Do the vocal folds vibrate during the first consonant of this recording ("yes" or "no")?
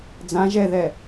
yes